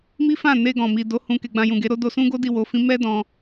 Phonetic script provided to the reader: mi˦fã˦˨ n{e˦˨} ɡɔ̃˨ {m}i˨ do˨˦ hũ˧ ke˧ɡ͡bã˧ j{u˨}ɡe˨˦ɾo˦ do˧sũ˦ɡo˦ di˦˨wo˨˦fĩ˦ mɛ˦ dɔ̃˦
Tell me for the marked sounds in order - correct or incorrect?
incorrect: e˧, correct, incorrect: ũ˨

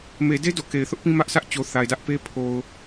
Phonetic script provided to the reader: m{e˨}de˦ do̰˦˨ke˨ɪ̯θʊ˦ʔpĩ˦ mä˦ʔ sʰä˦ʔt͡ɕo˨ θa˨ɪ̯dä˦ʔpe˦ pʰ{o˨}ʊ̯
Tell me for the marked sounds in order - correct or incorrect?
correct, correct

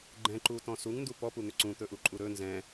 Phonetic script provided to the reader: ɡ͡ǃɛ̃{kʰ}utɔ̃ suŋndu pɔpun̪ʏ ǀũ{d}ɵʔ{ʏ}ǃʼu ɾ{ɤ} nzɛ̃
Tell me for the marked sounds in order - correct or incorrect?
incorrect: ǃ, incorrect: t̪, incorrect: u, incorrect: ɵ

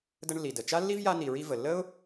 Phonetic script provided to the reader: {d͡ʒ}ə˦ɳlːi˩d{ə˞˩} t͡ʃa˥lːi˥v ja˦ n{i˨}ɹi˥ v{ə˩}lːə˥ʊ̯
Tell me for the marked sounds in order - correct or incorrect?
incorrect: d, incorrect: ə˩, correct, correct

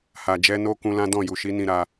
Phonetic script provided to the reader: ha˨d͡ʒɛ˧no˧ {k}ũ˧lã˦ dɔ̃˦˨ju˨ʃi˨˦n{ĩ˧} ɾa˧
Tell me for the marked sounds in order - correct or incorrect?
correct, correct

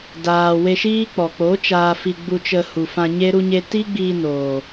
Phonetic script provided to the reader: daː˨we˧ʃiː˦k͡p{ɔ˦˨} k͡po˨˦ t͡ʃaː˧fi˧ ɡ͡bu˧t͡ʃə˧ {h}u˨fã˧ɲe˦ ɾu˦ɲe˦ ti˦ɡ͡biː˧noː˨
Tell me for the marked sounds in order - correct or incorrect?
incorrect: ɔ˨, correct

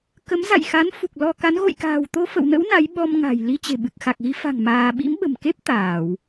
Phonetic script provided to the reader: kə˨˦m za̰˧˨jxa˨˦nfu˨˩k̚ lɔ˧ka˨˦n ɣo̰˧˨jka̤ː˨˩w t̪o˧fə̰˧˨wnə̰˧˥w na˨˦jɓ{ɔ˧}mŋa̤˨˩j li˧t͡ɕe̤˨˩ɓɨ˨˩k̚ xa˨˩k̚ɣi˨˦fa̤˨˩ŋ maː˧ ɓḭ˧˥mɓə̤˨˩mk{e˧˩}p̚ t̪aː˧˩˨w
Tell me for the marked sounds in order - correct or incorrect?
correct, incorrect: e˦˥

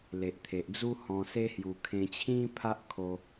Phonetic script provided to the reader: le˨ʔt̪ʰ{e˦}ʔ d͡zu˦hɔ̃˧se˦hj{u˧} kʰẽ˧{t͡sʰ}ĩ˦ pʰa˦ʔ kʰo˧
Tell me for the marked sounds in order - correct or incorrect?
incorrect: e˨, correct, incorrect: t͡ɕʰ

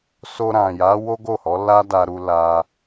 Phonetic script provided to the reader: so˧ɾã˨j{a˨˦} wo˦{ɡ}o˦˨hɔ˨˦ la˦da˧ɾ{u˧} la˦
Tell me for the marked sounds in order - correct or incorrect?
correct, correct, correct

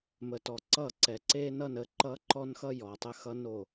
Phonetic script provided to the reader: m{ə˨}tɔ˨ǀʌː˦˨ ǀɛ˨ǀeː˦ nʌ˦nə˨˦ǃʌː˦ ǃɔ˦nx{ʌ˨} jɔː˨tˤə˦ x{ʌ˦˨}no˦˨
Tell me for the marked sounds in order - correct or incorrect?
correct, incorrect: ʌ˦, incorrect: ʌ˦

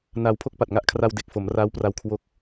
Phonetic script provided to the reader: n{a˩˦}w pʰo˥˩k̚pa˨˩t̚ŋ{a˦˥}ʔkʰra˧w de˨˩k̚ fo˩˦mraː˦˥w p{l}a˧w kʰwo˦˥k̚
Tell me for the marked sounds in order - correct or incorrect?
incorrect: a˧, correct, incorrect: r

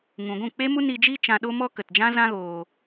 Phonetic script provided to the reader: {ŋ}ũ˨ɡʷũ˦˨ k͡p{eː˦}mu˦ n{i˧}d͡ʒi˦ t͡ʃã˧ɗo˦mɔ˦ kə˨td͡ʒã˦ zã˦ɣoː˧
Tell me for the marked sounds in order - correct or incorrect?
correct, incorrect: e˦, correct

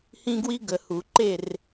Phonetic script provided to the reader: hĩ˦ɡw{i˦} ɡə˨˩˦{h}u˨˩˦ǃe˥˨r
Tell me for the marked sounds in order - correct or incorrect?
correct, correct

